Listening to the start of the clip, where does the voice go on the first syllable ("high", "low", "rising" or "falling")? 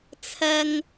high